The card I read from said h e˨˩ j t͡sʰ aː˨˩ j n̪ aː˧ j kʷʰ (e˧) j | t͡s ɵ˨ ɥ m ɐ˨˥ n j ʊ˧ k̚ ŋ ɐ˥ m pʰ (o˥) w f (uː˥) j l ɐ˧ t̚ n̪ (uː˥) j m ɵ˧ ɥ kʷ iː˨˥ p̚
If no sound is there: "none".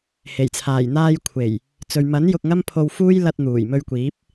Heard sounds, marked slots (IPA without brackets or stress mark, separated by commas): e˨˩, o˧, uː˥, uː˨˩